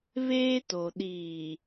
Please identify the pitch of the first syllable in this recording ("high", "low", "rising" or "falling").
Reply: high